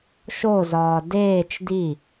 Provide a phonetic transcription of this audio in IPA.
ʃ o z ɒː d eː t͡ʃ d i

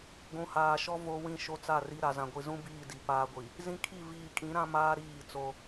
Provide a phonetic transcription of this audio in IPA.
ɡʷ ũ˨ h aː˨ ʃ ɔ˦ v o˦ w ĩ˦˨ ʃ o˦ t͡s a˦˨ r i˦ ɾ a˨ z ã˨ ɡʷ i˨ z ũ˦ b iː˦˨ d i˨ p aː˦ ɡʷ i˨ | z ĩ˦ kʰ i˦˨ v iː˨ kʼ ĩ˨˦ ɾ ã˦ m aː˦ ɾ iː˦˨ t͡s o˦

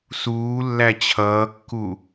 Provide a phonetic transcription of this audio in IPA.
s uː lː æ t͡ɕʰ ʌː kː u

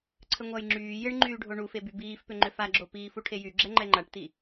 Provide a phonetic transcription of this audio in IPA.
ǀʰ ə ŋʷ a j ŋ͡ǁ yː j ɪ ɳ ŋ͡ǃ yː ɖʱ o ɳ u f e b y b iː f p ʏ ŋ͡ǃ ʏ f a ɡ͡ǁ o p iː f u ʈʰ e j y ɡ͡ǁ ɛ ŋ͡ǃ ɛ ŋ͡ǃ a ʈ t i

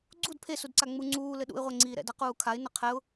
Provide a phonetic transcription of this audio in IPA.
ɡ͡ǀ u d pʰ e s u d ǀ a ŋ͡m u ŋ͡ǀ uː l ɘ ɗ ṵ ɪ̯ ʁʷ ɛ ŋ͡ǀ iː ɾ ɛ̰ d a q uː kʰ a ɪ̯ n ɐ qʰ ɛ ʊ̯

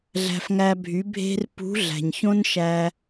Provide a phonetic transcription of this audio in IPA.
ɮ æ̤˧ f ŋ æ˧ bʱ y˨˦ bʱ e̤˧ r p ṳ˨˦ ɮ æ̤˨ ɲ ç õ˦ n ʃ æ˧

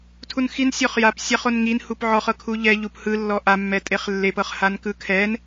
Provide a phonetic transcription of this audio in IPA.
tʰ u n x i n sʲ ɔ χ j a p sʲ a χ o n ŋ i n h u p ʕ ɔ χ ɤ kʰ u ʎ ɛ ʎ u p h ɯ lː ɔ ʔ a mː ɛ tʼ e χ lː e p ɤ χ h a n k ɯ kʰ ɛ n

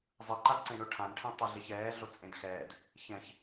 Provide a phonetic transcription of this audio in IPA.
zˤ ɯ ǃ a d ǀ ẽ ɳ o ʈʰ ã n ʈʰ ẽ tˤ ɯ ɮ e ç ɛː ɮ o t͡sʼ ẽ d x ɛː d | ç ɛ̃ ç

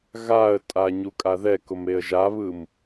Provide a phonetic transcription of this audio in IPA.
ɣ a ə̯ tʼ a ɲ u kʼ a ð ɛ k ʊ m e ə̯ ʒ a β ɯ m

